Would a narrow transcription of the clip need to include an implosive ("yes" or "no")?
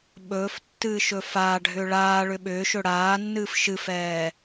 yes